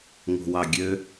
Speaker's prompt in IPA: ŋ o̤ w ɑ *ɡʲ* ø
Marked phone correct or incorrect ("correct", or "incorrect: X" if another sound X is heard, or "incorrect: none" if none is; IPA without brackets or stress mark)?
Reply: correct